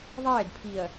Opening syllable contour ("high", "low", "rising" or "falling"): falling